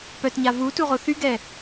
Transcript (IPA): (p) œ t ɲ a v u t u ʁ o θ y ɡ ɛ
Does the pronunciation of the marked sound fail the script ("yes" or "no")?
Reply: no